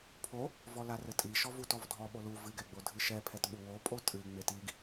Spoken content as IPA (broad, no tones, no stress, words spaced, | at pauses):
pʰo | vɔlarɘtʼi ʃɔvutɔvdʱɔ ɓolu vɨ ɡɛɡ͡bodʱɨʃɛ pʰɛtɓuwo pʼotʼɨ ŋ͡metiɡ